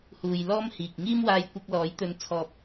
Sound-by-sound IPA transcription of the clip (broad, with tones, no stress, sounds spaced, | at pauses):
h uː˨ j l ɔː˥ m h iː˨ k̚ ŋ iː˥ m w aː˧ j kʷ ɐ˧ k̚ l ɔː˨˥ j t̪ ɵ˧ n t͡sʰ ɔː˧ p̚